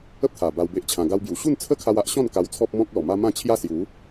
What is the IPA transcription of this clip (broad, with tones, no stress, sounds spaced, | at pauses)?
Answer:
ə˦ p̚ t̪ʰ a˨˩ b a˧ w b e˦ ʔ t͡ɕʰ ã˧ ɡ a˧ w b j u˨˩ ɕ u˥˧ n t͡sʰ ə˦ kʰ a˧ w a˦ ʔ ɕ ɔ̃˥˧ n k a˧ w t͡sʰ ɔ˦ p̚ m ɔ̃˦ k̚ l ɔ˨˩ m a˦ m ã˥˧ t͡ɕʰ j a˥˧ s j u˨˦